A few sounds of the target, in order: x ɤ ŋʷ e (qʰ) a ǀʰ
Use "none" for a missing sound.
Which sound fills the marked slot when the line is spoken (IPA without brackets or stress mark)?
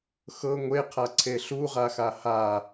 qʰ